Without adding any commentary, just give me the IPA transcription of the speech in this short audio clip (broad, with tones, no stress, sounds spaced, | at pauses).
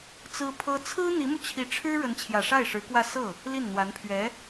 t͡s ɹ̩˥ pʰ ɤ˥ t͡sʰ ɹ̩˥ n̪ i˧˥ m u˧ t͡ɕʰ i˧˥ ʈ͡ʂʰ ɻ̩˥ ɻ ə˧˥ n t͡ɕʰ j ä˨˩ ʂ a˥˩ ɪ̯ ʂ ɻ̩˧˥ k w ä˥˧ s ɤ˥˩ | l i˥˩ n n̪ w a˧˥ n pʰ ɥ ɛ˧˥